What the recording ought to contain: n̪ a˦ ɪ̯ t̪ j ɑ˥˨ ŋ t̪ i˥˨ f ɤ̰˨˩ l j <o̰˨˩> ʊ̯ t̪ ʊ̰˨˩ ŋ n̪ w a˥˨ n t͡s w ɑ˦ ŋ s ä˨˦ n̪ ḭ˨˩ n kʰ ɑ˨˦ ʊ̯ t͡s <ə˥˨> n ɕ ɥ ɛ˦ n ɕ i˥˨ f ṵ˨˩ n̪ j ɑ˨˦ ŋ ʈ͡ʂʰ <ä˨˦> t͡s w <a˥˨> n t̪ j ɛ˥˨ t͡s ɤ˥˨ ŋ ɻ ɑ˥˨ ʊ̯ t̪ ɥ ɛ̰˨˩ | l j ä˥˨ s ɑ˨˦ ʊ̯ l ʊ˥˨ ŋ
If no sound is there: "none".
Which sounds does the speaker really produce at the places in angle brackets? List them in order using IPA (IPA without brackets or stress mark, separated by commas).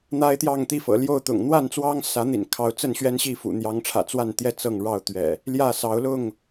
o˥˨, ə˥˨, ä̰˨˩, a˥˨